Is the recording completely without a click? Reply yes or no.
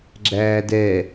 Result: no